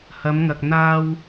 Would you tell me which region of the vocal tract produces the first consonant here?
throat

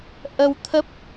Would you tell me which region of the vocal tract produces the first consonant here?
throat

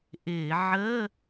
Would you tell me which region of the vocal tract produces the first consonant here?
throat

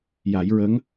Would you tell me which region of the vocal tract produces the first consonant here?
palate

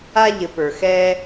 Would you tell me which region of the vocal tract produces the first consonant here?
palate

